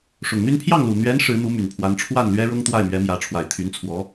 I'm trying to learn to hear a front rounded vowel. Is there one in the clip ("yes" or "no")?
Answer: yes